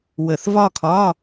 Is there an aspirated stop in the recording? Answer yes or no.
yes